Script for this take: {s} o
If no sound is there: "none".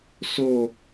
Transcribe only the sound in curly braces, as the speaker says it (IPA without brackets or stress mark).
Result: s